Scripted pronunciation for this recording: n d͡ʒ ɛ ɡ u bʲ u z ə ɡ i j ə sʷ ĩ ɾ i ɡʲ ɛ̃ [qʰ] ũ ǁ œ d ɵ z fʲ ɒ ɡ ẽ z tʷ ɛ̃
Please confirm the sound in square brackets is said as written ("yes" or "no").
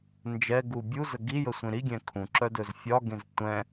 no